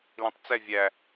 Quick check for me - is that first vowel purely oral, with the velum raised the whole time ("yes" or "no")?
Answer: no